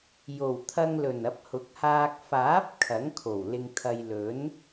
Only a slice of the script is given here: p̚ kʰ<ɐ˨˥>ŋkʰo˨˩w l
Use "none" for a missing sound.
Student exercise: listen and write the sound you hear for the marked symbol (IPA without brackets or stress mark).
ɐ˨˥